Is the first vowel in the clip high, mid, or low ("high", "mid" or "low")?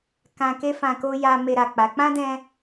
low